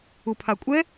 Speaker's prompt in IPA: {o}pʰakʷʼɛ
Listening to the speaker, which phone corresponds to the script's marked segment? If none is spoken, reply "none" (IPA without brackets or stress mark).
u